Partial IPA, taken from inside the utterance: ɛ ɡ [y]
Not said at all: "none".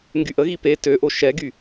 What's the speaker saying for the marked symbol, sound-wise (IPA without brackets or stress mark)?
y